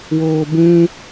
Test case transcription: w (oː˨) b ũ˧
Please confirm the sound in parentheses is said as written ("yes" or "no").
yes